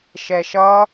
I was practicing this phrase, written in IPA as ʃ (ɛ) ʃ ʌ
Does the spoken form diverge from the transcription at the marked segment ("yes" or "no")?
no